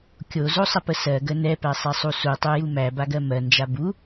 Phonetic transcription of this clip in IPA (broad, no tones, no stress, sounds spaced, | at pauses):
kʲ o z o sˤ ə p ə s ɜ ɡ ə n ɛ p æ sˤ ɛ sˤ u s u tˤ u j u m æ b a ɡ ɜ m ɜ n d͡ʒ a b u